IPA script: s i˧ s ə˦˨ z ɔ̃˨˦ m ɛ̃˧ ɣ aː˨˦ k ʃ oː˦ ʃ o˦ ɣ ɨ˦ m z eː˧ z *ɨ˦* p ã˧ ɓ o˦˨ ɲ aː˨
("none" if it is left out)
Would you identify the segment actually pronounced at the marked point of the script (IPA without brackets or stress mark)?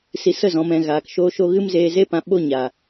e˦